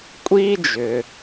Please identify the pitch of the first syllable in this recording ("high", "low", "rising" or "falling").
high